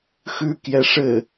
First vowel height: high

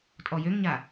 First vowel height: mid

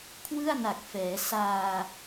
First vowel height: high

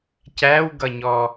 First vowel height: low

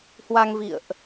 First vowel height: low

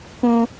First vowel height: high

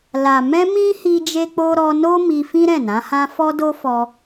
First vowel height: low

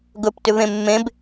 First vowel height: mid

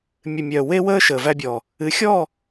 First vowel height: high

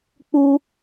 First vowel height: high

